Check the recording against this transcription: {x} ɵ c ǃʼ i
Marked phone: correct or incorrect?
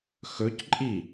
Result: correct